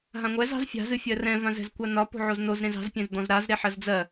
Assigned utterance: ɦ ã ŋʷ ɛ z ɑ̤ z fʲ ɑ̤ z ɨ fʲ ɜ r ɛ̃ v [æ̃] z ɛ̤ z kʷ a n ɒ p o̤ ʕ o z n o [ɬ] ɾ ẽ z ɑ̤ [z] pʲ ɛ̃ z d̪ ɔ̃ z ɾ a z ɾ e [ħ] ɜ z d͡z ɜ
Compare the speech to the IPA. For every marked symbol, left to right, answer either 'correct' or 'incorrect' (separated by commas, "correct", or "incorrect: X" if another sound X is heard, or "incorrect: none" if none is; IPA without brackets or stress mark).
incorrect: ã, incorrect: z, correct, correct